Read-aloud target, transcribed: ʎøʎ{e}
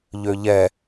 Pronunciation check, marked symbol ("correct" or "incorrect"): incorrect